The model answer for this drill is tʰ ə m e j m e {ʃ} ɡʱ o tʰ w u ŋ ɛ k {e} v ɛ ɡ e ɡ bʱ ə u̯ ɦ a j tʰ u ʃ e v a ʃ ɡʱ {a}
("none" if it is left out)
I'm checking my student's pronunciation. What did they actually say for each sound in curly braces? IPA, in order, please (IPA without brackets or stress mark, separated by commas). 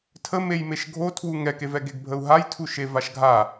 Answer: ʃ, e, a